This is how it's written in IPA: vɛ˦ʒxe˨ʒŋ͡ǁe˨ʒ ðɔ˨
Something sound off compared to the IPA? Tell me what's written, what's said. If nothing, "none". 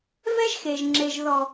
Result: none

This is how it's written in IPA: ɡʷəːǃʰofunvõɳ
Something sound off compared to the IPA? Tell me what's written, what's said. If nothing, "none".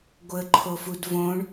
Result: n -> d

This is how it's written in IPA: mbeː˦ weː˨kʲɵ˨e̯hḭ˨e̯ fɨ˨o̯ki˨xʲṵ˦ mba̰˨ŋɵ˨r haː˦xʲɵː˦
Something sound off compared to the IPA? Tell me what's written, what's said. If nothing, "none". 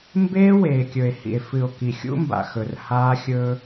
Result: ŋ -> x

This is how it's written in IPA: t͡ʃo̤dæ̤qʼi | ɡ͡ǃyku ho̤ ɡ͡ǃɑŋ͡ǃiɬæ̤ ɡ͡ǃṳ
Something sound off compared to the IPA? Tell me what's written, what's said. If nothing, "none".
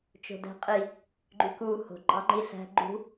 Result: none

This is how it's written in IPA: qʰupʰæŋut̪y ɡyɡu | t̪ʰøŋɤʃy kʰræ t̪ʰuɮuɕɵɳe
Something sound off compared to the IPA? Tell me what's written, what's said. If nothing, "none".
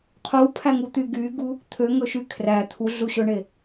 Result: ɤ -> ɵ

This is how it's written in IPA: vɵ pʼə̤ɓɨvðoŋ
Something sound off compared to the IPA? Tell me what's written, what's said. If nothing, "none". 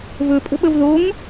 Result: ɨ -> ə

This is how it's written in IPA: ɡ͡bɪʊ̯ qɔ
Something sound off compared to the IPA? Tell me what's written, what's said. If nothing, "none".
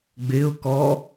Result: q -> k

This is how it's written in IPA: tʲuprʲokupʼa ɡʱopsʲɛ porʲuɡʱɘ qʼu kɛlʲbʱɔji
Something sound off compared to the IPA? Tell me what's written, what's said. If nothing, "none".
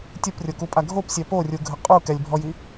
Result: none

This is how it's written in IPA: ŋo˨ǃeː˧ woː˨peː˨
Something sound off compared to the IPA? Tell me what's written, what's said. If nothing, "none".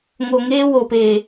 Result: ǃ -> ŋ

